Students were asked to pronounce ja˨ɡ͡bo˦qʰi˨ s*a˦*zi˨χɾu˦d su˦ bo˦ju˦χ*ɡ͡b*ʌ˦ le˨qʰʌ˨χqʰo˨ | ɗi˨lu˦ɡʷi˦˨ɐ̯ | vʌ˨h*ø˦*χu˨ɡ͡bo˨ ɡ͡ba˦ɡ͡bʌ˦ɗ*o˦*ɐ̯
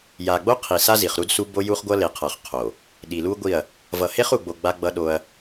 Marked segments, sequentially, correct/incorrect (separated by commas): correct, incorrect, incorrect, correct